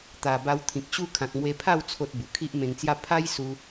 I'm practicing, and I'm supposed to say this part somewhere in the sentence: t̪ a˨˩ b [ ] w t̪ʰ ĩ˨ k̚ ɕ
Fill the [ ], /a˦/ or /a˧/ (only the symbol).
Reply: a˧